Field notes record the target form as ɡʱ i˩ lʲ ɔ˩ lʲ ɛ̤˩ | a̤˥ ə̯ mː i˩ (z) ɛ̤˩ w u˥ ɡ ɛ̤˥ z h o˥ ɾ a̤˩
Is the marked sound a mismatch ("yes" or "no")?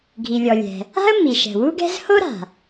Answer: yes